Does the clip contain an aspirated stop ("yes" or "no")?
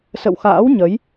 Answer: no